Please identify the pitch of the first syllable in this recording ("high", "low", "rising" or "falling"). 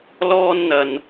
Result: high